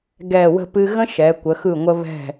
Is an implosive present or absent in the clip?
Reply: absent